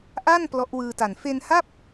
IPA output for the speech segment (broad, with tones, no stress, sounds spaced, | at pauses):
ʔ a˥˩ n p l ɔ˦˥ ʔ w ɯː˧ t a˨˩ n f e˧ n h a˥˩ p̚